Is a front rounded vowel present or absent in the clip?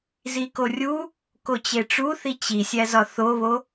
absent